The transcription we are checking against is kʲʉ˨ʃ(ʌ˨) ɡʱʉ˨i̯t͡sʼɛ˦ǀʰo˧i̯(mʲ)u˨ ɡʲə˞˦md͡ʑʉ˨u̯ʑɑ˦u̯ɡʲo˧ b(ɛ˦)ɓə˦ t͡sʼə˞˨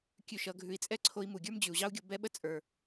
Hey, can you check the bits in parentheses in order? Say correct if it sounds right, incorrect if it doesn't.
correct, incorrect: m, correct

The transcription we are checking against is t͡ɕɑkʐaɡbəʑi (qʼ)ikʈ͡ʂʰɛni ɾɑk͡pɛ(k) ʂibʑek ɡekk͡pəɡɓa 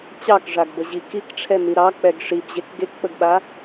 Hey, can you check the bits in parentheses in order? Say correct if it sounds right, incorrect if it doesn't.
incorrect: k, incorrect: ɡ

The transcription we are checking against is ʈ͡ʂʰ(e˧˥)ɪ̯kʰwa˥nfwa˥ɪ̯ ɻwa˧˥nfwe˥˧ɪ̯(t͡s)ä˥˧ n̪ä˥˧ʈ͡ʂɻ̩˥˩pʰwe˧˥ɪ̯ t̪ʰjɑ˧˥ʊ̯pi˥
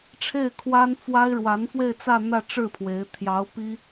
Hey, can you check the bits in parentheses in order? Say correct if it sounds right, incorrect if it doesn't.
incorrect: e˥˩, correct

